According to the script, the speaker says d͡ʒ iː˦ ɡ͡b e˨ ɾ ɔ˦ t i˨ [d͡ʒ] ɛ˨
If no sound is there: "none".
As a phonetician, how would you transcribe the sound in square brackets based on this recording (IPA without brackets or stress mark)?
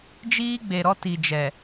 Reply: d͡ʒ